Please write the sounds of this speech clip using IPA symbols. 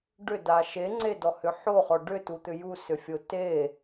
ɖ ʏ d a ʃ e ŋ͡ǀ e d ɔ h ʏ ħ o χ ɔ ɖ ʏ t u t̪ ʏ j u s ʏ fʲ o t e

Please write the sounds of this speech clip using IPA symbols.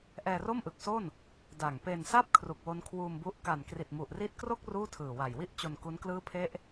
ʔ ɛː˧ r o˥˩ m ʔ ɯ˨˩ k̚ s o˥˩ n | d a˨˩ ŋ p e˧ n s a˥˩ p̚ kʰ r u˨˩ k̚ w o˦˥ n kʰ w uː˧ m b u˦˥ ʔ k a˨˩ n k r i˨˩ t̚ m u˨˩ ʔ r i˦˥ t̚ k r o˥˩ k̚ r uː˥˩ tʰ ɯː˨˩ w a˨˩ j w i˥˩ ʔ t͡ɕ o˧ n k u˦˥ n k l ɯː˦˥ pʰ e˦˥ ʔ

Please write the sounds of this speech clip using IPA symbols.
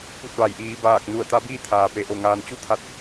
p u˧˩ t̚ ʋ a˩ j ʔ iː˩˧ b aː˧˩ k̚ n u˧˩ ə̯ t̪ a˧˥ b iː˥˨ t̪ʰ aː˩ p e˩˧ ʔ o˧˩ ŋ aː˧ n t͡ɕ u˥˨ t̪ʰ a˧˩ t̚

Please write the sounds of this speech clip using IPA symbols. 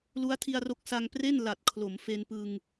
l u˦˥ a̯ tʰ i˧ a̯ r o˦˥ k̚ s a˧ ŋ p r e˥˩ n l a˨˩ t̚ kʰ l o˩˦ m f e˧ n p ɯ˧ ŋ

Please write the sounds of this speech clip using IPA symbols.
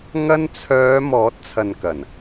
ŋ ɐ˧ n t͡sʰ œː˨˧ m ɔː˨˥ t̚ t͡sʰ ɐ˨ n k ɐ˨˩ n

